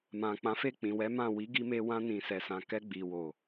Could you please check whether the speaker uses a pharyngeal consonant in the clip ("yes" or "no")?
no